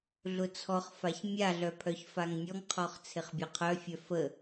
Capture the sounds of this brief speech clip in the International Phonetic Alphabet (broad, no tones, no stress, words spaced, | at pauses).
ɮʊt͡sʰɔχfaç mʲaɮœ pʰœçfaŋnʲɔŋqʰɔχ t͡sʰɪχbʲɔqʰœfʲœ fə